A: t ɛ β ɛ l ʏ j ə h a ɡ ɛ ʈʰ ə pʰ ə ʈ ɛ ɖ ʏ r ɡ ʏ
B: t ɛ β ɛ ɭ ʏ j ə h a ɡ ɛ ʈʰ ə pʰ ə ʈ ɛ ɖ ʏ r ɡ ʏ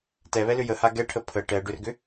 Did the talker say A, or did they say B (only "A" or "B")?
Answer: A